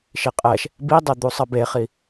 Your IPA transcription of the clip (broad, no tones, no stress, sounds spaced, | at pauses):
ʃ i qʼ ɛ ʃ | b i dˤ e d̪ u sˤ ʌ b e χ i